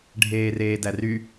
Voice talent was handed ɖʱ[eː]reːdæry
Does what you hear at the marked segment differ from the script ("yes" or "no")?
no